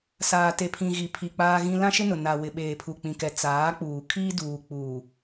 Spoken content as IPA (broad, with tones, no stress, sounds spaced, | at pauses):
s aː˨ t e˨ pʰ ĩ˨ ɣ i˨ pʰ i˨ k͡p aː˦ ɣ ĩ˦ l ã˦ ʃ ɪ˦ n ʊ˨ n a˨ w ɪ˨ ɓ eː˨ pʰ u˨ k͡p ĩ˨ k ɛ˨ t͡s aː˨˦ k͡p uː˨ kʰ iː˦ d uː˨ k͡p u˨